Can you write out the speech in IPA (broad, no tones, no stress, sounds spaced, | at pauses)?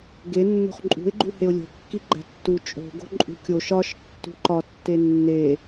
ɡ e nː o̤ χ ǃʼ ṳ ɪ̯ ɡ͡ǃ u h e ʊ̯ lʲ o̤ kː i ɡ͡ǃ æ̤ tː u t͡ʃʼ o̤ ɡ o̤ ǃʼ ṳ kʲ o ʃ ɒ ʃ tː ṳ ǃ ɒ tː e nː e